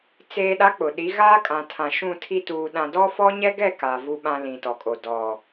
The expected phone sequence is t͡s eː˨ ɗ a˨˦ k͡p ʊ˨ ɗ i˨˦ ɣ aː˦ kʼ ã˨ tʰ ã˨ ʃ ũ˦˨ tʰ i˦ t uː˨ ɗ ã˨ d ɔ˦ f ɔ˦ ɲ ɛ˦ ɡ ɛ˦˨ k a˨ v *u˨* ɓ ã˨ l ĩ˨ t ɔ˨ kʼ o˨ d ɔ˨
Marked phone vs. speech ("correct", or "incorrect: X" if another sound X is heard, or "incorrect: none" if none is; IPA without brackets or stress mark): correct